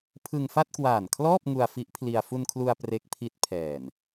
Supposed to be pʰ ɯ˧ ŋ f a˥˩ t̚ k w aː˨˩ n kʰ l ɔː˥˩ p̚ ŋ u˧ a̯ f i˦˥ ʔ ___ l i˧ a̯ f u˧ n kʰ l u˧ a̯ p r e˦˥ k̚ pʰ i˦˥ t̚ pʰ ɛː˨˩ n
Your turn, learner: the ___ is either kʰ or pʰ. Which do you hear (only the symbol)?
pʰ